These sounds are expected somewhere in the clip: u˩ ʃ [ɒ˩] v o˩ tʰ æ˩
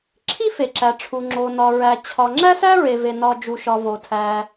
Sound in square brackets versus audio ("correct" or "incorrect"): correct